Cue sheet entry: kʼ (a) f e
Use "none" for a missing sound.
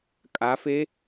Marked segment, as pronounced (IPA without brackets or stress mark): a